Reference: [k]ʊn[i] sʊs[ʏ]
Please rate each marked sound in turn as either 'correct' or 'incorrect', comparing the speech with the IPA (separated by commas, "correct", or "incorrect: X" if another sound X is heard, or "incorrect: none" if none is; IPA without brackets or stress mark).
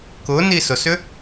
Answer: correct, correct, correct